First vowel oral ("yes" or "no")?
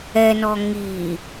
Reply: yes